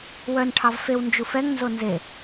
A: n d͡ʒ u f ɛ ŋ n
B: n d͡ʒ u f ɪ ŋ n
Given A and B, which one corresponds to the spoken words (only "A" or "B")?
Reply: A